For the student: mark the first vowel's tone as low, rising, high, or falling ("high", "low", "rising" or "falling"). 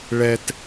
low